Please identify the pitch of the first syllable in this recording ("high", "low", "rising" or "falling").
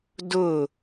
falling